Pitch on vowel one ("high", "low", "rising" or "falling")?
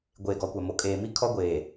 low